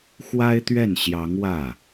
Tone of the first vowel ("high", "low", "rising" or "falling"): high